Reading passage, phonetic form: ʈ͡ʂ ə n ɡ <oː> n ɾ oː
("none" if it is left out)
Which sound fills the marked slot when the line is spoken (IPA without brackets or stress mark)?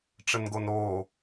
o